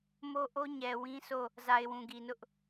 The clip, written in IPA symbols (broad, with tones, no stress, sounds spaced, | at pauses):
m o˦ ʔ o˦ ɲ ɛ˨ w ĩ˦ s o˦˨ | z a˨ ɪ̯ w ũ˨ ɡ i˨ n ʊ˦ ʔ